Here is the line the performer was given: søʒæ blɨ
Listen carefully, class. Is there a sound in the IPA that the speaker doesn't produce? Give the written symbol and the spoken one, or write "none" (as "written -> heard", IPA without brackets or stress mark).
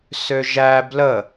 ɨ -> ə